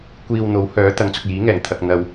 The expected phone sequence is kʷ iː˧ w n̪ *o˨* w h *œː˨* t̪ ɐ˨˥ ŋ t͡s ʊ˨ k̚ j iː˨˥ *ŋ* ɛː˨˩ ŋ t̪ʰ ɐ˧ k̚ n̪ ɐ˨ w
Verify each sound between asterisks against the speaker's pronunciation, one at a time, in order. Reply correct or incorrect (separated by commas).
incorrect, incorrect, correct